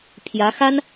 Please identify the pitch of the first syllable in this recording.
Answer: rising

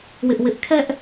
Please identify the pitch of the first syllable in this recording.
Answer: high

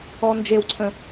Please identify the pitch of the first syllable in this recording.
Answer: high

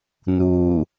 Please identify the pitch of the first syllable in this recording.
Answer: low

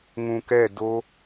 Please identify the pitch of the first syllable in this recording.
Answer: low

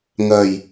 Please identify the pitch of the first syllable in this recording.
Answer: low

